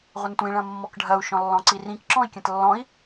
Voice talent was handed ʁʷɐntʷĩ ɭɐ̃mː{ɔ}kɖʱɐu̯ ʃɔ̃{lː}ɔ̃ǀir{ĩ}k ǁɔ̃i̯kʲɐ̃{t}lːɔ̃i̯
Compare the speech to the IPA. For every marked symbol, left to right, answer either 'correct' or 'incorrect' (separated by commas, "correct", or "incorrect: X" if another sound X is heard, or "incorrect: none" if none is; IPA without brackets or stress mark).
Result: correct, correct, correct, correct